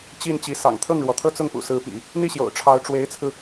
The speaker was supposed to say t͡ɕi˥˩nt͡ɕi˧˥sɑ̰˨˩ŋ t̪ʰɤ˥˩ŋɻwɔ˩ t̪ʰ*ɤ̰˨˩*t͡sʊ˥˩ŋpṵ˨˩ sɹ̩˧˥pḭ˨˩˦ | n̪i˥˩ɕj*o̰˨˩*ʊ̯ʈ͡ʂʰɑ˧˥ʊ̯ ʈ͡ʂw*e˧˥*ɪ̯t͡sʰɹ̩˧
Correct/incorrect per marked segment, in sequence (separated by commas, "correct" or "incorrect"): incorrect, correct, correct